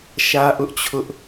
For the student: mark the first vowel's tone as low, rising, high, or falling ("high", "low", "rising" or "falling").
high